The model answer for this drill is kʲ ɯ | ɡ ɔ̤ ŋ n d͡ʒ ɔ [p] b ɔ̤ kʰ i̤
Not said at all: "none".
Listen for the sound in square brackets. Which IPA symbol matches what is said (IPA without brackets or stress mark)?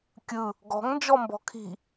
m